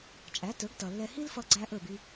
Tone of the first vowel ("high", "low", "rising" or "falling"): rising